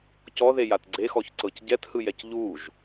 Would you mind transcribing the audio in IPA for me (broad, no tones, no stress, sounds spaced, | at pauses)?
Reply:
c ɔ ð e j a t ɡ͡ǀ e x ɔ ç ǀ ɤ c ɟ ɛ t h ɯ j ɛ c ʎ u ʒ